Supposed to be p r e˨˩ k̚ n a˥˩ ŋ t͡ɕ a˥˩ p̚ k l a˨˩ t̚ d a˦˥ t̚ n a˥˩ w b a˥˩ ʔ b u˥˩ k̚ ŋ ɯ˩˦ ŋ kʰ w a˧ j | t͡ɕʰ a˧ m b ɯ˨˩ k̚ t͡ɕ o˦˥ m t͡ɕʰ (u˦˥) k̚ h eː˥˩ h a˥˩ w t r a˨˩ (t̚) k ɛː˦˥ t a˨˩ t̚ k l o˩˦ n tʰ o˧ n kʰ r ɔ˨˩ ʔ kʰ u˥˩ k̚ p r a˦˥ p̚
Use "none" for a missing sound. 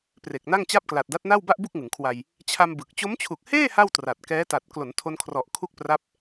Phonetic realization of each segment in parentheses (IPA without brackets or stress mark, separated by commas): u˨˩, t̚